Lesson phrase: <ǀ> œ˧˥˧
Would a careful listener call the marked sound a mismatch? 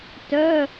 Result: yes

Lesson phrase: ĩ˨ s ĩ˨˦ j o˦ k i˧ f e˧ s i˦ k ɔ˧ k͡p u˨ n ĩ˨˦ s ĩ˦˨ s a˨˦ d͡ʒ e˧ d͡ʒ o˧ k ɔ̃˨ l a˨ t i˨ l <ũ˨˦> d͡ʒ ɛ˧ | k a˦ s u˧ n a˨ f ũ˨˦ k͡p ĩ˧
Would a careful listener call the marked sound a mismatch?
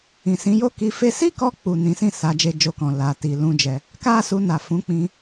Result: yes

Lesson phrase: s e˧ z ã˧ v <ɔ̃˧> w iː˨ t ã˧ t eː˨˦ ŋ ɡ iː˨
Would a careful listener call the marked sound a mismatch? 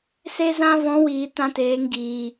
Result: yes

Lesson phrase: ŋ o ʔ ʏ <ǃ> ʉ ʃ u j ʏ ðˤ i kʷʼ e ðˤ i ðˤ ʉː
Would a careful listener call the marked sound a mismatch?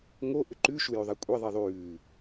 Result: no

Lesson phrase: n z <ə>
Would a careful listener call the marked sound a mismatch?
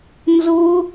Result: yes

